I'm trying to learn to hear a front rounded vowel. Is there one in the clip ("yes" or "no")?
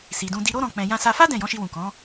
no